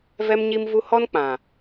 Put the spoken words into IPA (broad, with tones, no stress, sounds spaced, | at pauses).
v ɛ˦ m ɲ i˦ m v u˦ h ɔ˦ n k͡p ã˨